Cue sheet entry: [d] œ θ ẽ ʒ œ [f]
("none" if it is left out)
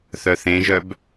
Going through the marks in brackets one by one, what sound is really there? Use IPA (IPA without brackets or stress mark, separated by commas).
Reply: θ, b